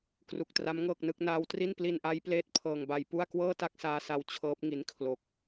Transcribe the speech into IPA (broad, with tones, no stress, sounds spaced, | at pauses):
k r u˨˩ k̚ t r a˦˥ m ŋ ɤː˥˩ k̚ n ɯ˦˥ k̚ n aː˧ w t r i˥˩ n p l i˧ n ʔ a˦˥ j p l eː˦˥ t̚ pʰ ɤː˧ ŋ b a˧ j p u˥˩ a̯ k w ɤː˥˩ t a˥˩ k̚ s aː˧ s a˧ w t͡ɕʰ ɤː˦˥ p̚ ŋ i˦˥ n kʰ l o˦˥ k̚